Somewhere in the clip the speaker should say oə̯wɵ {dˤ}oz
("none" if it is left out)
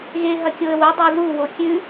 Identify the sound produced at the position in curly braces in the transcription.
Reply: dˤ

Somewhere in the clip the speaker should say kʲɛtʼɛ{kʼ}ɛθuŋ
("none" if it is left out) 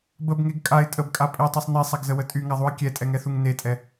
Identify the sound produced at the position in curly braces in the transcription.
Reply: ŋ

